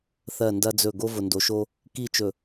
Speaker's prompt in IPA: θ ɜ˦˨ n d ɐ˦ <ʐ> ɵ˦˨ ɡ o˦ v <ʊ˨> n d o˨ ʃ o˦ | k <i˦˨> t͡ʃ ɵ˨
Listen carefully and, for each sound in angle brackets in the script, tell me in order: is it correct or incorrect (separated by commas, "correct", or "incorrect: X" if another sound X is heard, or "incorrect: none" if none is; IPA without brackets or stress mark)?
incorrect: d͡z, correct, correct